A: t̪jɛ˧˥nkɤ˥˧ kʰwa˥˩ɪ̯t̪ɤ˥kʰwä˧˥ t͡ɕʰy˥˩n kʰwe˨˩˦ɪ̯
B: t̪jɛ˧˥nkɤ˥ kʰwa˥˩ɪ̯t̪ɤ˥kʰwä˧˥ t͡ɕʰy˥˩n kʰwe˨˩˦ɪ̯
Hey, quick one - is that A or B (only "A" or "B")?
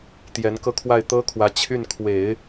A